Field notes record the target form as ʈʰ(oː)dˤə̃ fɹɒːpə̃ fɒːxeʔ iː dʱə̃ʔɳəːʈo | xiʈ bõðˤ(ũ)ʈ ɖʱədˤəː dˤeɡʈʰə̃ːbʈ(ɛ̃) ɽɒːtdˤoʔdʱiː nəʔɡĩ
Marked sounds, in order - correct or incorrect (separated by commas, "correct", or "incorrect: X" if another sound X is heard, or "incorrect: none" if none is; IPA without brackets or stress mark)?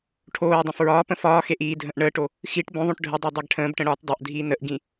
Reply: correct, incorrect: õ, incorrect: ə̃